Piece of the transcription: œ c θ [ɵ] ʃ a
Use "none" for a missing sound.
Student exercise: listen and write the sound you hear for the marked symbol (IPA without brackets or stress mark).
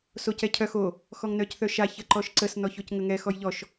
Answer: œ